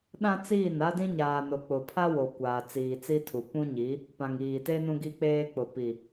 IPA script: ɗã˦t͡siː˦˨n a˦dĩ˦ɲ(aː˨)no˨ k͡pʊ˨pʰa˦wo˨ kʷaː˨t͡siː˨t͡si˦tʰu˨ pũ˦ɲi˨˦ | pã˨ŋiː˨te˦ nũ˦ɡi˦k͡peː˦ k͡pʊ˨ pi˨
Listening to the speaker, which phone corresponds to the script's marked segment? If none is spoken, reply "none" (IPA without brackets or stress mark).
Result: aː˨